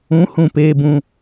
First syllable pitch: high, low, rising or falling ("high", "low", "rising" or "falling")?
rising